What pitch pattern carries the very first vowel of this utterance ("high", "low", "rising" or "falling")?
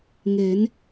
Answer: rising